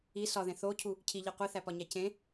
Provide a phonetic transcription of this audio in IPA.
i sɒðẽ θocʰu | cʰiʎi qʷiθæpɒɲæ cẽ

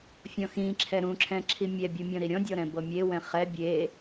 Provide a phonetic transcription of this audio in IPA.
fʲɔ̃xĩǁʰɛ ɾũǁʰɛ̃ ǁʰimʲɛbʲu mʲɔ̃ɾiɾʲɔ̃dʲɔ ɾɛ̃bɤmʲewɛ̃ χɛ bʲe

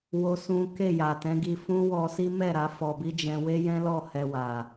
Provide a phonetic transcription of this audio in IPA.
wo˦sũ˦ ke˦˨ja˨tɛ̃˨˦ ɡi˧fũ˦ wɔ˧si˦mɛ˦˨ ɾa˨˦fɔ˧bi˦ d͡ʒɛ̃˧we˦jɛ̃˦lɔ˦˨ hɛ˧wa˨

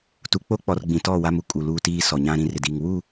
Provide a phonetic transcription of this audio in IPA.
tu˨k͡po˦k͡pɔ˨r ɡ͡bĩ˨tɔ˦˨wa˦mu˦ kʼu˨luː˦tiː˦ sɔ˨ɲã˦ɾĩ˨˦r ɪ˨diː˨ŋ wu˦˨

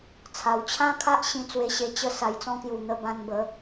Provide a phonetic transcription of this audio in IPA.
t͡sʰa˨˩w t͡ɕʰã˦kʰa˦ʔ ɕĩ˧t͡swe˧ɕe˧ t͡ɕə˧ sa˨˩jt͡sɔ̃˧kju˨˩ n̪ə˧bã˧nbə˨˦

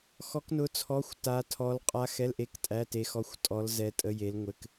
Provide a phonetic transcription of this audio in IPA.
xɔ˧˥knʊ˧˥ t͡sʰɔ˧˥˧xʷ ta˧˥tʰɔ˧˥l qʼa˧˥xɛ˧˥˧lʔe˧˥˧k tʼæ˧˥˧te˧˥ xɔ˧˥˧xʷtʼɔ˧˥l zɛ˧˥tʼə˧˥˧je˧˥lŋʷɘ˧˥˧k

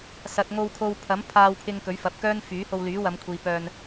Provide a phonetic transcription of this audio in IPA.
sɐ˨t̚ŋo˧wkʰo˧w pʰɐ˨˥m pʰaː˧wpʰɪ˧ŋ kɵ˨˥ɥfɐ˨˥p̚kœː˥n fyː˨˥ho˧w lyː˨˥wɐ˨˧mkʷʰiː˨ pœː˧n

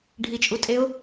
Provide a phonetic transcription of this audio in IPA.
ɖʱit͡ʃʼutʼeʊ̯

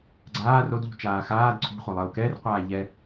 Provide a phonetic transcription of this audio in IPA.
ɡ͡ǀaː rodʎṳt͡ʃaː xaːd ǀʰṳχʷalˠəːu̯ kɛrqʷaː ʎɛ

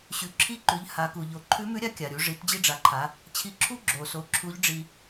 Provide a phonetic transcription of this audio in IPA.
ɕʉ˩ǁʰi˧˥ǃʉ˩˧ʎ ha˩˧ku˩ʎo˩˧ ǃʰʉ˧˥mʉ˧˥ɾʲa˧˥ kʲa˩ɾʲu˩˧ ʐi˩˧td͡ʑi˧ɖ͡ʐa˩˧ǃʰa˩˧ | t͡ɕʰi˧ǁʰu˥ ɡ͡ǁo˩so˩˧ ǁʰu˧˥ʎɖ͡ʐi˧

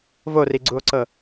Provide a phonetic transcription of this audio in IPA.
voriɡ͡ǀuo̯ǀɤ

